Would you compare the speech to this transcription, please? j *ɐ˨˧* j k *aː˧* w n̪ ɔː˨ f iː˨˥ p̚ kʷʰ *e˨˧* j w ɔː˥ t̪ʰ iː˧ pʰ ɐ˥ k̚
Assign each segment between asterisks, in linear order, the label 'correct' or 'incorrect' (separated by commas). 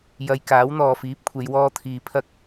incorrect, incorrect, correct